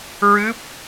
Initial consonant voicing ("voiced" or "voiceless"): voiced